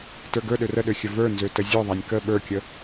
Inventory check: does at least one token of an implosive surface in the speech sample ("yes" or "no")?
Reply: yes